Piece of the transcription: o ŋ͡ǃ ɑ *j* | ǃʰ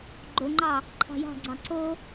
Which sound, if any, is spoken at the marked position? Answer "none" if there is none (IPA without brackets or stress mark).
none